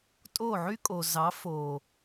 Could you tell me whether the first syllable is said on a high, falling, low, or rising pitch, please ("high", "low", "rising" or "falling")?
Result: falling